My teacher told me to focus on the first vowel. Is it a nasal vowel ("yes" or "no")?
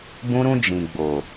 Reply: yes